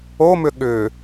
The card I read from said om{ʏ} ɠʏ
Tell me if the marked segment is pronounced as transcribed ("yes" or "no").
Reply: yes